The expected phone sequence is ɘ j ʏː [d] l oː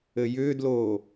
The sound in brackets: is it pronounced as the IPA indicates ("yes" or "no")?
yes